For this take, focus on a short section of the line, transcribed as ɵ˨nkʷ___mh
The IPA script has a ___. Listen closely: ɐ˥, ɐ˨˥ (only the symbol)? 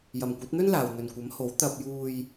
ɐ˨˥